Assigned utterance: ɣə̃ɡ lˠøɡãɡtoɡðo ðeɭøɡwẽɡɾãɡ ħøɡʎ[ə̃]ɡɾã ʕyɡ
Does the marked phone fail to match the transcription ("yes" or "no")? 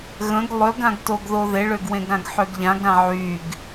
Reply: yes